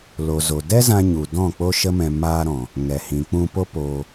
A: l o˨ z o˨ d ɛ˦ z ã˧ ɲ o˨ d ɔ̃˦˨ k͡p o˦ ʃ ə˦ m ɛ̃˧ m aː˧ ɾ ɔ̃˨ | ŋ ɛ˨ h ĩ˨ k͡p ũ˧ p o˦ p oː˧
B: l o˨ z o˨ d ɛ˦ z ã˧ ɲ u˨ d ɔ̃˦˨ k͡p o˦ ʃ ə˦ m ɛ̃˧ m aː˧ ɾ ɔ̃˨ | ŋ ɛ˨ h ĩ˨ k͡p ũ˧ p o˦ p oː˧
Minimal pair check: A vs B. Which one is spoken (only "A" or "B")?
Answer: B